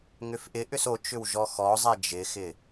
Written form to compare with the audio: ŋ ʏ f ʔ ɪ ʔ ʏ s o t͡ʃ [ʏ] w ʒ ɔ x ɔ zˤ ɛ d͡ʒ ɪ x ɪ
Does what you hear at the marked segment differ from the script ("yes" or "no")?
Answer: no